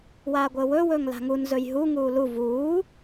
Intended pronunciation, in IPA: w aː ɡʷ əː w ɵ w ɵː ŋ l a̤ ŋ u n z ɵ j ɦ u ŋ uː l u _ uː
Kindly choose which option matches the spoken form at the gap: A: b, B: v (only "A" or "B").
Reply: B